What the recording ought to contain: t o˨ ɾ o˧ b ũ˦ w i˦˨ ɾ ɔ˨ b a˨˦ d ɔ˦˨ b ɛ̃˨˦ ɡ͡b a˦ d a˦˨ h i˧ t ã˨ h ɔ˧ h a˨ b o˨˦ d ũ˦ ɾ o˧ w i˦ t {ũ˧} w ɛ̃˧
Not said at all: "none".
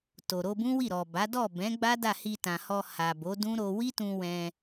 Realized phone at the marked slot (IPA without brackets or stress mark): ũ˧